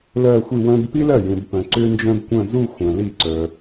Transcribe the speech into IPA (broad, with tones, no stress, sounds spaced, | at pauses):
l ɜ˥˧ xʷ i˥˧ w œ̃˥ b p i˥ l ɜ˥˩ j ũ˨ b p œ̃˨ ǀ ʏ˥ n d͡ʒ œ̃˥ b kʷ œ̃˥˧ z u˥˧ xʷ œ̃˨ l i˥˩ ǀ œ˨